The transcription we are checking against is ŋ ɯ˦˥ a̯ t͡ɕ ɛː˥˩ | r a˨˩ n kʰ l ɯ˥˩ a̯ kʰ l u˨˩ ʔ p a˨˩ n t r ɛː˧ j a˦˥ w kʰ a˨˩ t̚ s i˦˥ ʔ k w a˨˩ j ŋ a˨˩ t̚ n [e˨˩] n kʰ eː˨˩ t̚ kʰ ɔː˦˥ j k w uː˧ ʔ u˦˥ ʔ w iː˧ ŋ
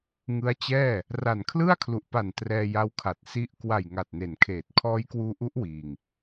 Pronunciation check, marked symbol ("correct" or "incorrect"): correct